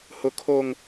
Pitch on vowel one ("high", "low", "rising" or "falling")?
low